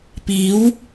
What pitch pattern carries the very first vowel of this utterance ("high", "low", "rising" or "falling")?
rising